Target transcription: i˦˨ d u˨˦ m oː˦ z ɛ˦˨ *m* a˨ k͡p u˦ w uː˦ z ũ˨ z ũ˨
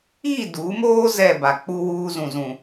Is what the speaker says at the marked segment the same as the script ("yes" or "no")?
no